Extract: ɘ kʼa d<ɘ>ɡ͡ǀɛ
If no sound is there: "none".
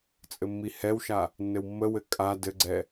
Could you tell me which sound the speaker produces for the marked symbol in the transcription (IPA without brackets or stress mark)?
ɘ